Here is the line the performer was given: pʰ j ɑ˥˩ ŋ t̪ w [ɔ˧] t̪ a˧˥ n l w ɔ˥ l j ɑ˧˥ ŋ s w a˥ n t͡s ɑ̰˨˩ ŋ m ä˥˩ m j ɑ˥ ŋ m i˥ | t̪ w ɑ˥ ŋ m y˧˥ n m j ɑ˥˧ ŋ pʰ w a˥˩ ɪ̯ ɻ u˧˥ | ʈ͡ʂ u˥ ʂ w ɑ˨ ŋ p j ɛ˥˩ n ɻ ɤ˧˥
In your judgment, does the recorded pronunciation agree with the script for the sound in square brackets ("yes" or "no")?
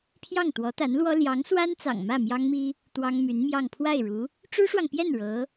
no